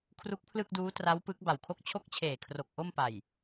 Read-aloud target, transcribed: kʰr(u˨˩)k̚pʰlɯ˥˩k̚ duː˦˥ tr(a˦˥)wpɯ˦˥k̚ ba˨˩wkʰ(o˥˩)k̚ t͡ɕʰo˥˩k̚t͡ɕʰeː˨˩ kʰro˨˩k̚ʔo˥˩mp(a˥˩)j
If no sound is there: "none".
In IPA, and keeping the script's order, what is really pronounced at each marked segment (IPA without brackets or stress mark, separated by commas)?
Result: u˦˥, a˦˥, o˥˩, a˨˩